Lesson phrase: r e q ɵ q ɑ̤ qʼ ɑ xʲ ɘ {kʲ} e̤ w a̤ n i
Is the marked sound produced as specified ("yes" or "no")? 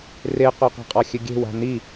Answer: no